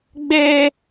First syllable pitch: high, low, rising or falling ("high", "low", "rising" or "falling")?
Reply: high